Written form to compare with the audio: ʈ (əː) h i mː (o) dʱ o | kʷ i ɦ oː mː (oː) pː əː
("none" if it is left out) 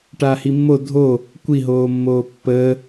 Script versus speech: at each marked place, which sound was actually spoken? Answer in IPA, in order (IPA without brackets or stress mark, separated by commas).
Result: aː, o, oː